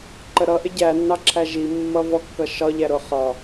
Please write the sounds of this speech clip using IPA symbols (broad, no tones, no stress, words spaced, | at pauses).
ǃəɾʌʔɪ ɟænːɑǁʰæ ʒimːʌvɔ kːʌʃɒʎæ ɾʊχɒ